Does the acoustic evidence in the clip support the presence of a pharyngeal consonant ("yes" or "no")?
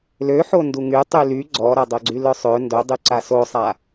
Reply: yes